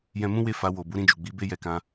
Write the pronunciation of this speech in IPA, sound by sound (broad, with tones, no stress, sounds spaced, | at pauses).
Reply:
j ɛ̃˧ m ũ˦ w e˦˨ f a˧ w o˨ b u˨˦ ɾ ĩ˧ d͡ʒ u˨ ɡ͡b i˨˦ b e˦ j ɛ˧ k ã˧